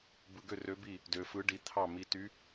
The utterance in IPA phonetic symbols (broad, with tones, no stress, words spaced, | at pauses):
bɯ˧ɡø˥˨rø˧˥bi˥˨ | dø˧fɯ˧˥ ɖi˧t̪ʰɑ˥˨ mi˧ty˧˥